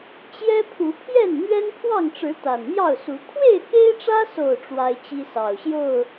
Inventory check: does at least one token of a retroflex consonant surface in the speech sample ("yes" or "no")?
yes